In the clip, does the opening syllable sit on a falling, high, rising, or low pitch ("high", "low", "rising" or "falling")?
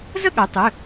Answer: falling